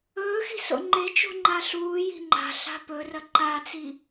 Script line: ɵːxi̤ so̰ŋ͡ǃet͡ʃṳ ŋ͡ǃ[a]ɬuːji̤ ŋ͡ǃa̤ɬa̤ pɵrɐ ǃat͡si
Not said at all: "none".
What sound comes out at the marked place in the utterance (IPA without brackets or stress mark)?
a